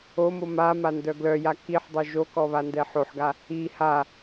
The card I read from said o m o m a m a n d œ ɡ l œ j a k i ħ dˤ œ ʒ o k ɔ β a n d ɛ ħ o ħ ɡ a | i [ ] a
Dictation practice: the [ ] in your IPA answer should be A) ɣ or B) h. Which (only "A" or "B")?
B